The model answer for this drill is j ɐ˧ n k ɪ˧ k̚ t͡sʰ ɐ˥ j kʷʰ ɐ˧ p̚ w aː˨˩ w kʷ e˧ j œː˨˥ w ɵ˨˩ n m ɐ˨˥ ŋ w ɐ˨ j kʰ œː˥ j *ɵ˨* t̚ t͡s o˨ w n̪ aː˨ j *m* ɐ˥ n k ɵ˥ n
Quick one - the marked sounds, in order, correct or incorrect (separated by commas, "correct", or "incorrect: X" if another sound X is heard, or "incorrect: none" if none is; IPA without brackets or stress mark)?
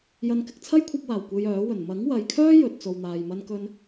correct, correct